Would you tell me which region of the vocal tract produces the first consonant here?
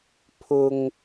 lips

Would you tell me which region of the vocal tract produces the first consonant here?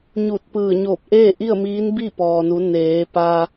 palate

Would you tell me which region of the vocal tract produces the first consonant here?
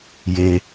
palate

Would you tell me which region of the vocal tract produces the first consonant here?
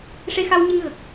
retroflex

